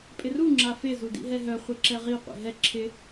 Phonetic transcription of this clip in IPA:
pʼ ɪ r u ŋ͡ǁ a f ɪ z u d ḭ ɦ ɛ ɦ œ χʷ ɪ ǁ ɛ ʁ i qʷ ḭ ɦ ɛ ǁʰ ɪ

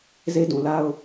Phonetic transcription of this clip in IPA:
z e˦ d ũ˨ l a˦ ʊ̯

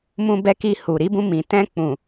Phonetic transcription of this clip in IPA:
m ũ˧ b ɛ˧ k i˧ h u˨ ɾ i˨˦ b ũ˧ m ĩ˨ t ɛ̃˧ k͡p ũ˨

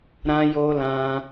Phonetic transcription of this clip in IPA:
ɾ ã˧ j o˧ l ã˧

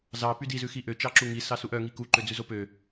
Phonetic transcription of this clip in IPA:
z ɑ p y d i z ʉ x i ʔ ø t͡ʃ ɑ ǁ u ŋ i s ɑ s u ʔ œ ŋ i k u ǃ ø d͡z ʉ z o p ø

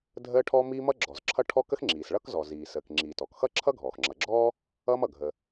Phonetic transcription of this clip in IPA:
dʱ əː˥ ʈʰ ɔ˥ m iː˥ m ʌ˥ ɡ͡ǁ ɔ˩ z ǁʰ ʌ˥ ʈʰ ɔ˥ k ə˥ x ŋ͡ǁ iː˩ s ɭ ʌ˥ k z ɔ˩ z iː˩ s əː˩ k ŋ͡ǁ iː˩ t ɔ˩ k x ʌː˥ ǁʰ ʌ˥ ɡʱ ɔː˩ x ŋ͡ǁ ʌ˩ ɡ͡ǁ ɔː˥ | ʌː˥ m ʌ˩ ɡʱ ə˩

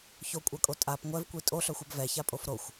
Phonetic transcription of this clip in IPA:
ç o kʷʼ a kʼ o tʼ a p ŋʷ ɛ v kʷ i tʼ o ɬ œ xʷ œ b v ɛ ç a pʼ o f ɾ o xʷ

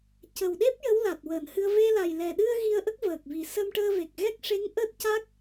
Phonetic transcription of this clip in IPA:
c ə˨˩ w ɗ e˦˥ p̚ j ə˧˥ w l a˨˩ t̚ w əː˨˩˨ n h ɨ˧ ə̯ v e˧ l a˨˩ j l ɛ˨˩ ɗ ɨ˧ ə̯ ɣ i˧ ə̯ ʔ ə˦˥ k̚ v əː˨˩ k̚ v i˨˩ s ə˧ m ʈ əː˧ v e˨˩ k̚ ɣ ɛ˦˥ k̚ ʂ e˧˥ ŋ ʔ əː˦˥ t̚ c a˦˥ k̚

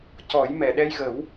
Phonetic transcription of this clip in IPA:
c ɔ˨˩˦ j m ɛ˨˩˨ ɗ ɛ˧ j ɣ ə˨˩˦ w

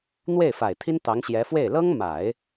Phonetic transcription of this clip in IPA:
n̪ w e˥˩ ɪ̯ f a˨˩ ɪ̯ t̪ʰ i˥ n t̪ ɑ˧˥ ŋ ɕ j ɛ˧˥ f w e˥˩ ɪ̯ l ɤ˥ ŋ m a˨˩˦ ɪ̯

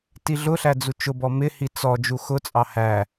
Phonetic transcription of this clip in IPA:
t i ɮ ʊ ɬ æ d͡z u t͡ʃ ʊ b ɔ m ɪ h i t͡s ɔ d͡ʒ u x ʊ t͡sʼ ɑ h æ

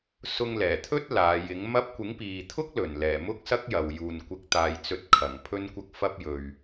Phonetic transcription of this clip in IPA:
s ʊ˧ ŋ l ɛː˨˩ t̪ʰ ɵ˥ t̚ l aː˨˧ j ɪ˨˥ ŋ m ɐ˥ p̚ kʷ ɪ˨˥ ŋ p iː˨ t̪ʰ ʊ˥ k̚ l ɵ˨˩ n l ɛː˨˩ m ʊ˥ k̚ s ɐ˥ k̚ j ɐ˨ w j uː˨˩ n kʷ ɪ˨ k̚ t̪ aː˨˩ j t͡s ɵ˨ t̚ kʰ ɐ˨˩ ŋ pʰ ɵ˧ n kʷ ɐ˧ k̚ f ɐ˧ p̚ j ɵ˨ ɥ

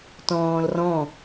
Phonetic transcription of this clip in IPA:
t ɔ̃ː l r ɔ̃

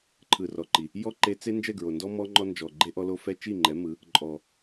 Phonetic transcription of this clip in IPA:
ǃʰ ɯ˨ r ɔ˨ ǃ i˨ | j ɔ˦ ǃ e˧ t͡s e˦ n d͡ʒ ɛ˦˨ ɡ ɹ o˨ n d ɔ˦ m ɔ˦ ŋ͡ǃ ɔ˦ n d͡ʒ ɔ˨ ɡ͡ǃ e˦ ʔ ɔ˧ l o˧ f ɛ˦ t͡ʃ i˦˨ ŋ͡ǃ ɛ˨˦ m ɯ˨˦ | ǃʼ ɔ˨

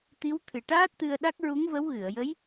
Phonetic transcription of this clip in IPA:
t̪ i˧˥ w t̪ʰ ɨ˨˩ ʈ aː˦˥ t̚ t̪ ɨ˧ ə̯ ɗ a˦˥ k̚ ɹ u˧˥ ŋ v ə˧˥ w ɣ ɨ˨˩˨ ə̯ j ə˧˥ j

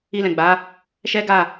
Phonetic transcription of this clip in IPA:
i˧ l ɛ̃˨ ɡ͡b a˨˦ | ʃ ɛ˦ ɡ a˦˨

